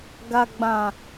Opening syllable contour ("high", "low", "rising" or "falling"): low